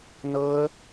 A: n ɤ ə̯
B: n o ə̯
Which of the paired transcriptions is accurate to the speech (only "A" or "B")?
A